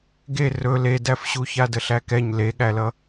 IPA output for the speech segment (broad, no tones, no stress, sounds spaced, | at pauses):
ɡ e r ɵ l e d æ f ɕ u ç a d ə ɬ æ k ɛ ɲ l e ɠ æ l ʌ